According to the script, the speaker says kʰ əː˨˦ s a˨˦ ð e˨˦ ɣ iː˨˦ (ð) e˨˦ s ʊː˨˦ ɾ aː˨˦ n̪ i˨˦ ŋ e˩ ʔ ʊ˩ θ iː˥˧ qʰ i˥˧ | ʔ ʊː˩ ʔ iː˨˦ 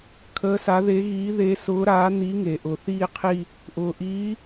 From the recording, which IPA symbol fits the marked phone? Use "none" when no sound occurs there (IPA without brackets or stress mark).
ð